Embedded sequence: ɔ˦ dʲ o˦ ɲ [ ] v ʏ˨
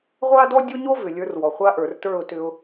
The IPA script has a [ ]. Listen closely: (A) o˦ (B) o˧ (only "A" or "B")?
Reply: A